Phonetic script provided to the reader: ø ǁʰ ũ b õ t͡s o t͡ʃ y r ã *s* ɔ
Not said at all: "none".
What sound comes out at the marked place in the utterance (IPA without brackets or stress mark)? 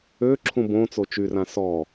s